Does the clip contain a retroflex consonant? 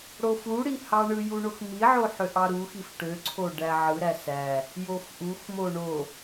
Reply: yes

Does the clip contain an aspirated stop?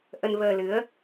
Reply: no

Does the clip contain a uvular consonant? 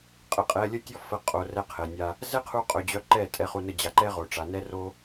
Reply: yes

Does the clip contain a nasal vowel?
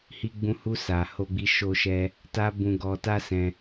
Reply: yes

